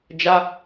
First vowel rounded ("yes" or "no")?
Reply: no